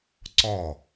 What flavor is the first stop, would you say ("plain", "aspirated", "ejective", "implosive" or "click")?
click